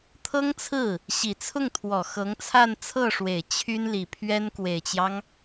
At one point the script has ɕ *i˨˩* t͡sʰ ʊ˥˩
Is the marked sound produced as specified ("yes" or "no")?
yes